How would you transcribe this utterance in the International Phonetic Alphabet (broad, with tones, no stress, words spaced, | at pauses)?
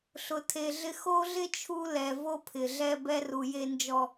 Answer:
ɬʊ˨tʰe˨ɮɪ˦ xo˦ɮɪ˦ t͡ʃʰu˦lɛ˨ vo˦pʰɪ˨ɮɛ˦ bɛ˦ru˨je˦nd͡ʒɔ˦